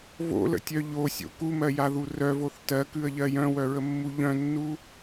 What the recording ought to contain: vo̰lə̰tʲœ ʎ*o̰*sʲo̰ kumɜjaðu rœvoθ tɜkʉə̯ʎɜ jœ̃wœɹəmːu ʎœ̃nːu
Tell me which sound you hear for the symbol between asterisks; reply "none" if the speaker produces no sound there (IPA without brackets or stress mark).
o